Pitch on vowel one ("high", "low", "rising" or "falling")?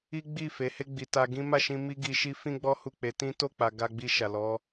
high